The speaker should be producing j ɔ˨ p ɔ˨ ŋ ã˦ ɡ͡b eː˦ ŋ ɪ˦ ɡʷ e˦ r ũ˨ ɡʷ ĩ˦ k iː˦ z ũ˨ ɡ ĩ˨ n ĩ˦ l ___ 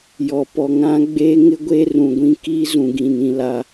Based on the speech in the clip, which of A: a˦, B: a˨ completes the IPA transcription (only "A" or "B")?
A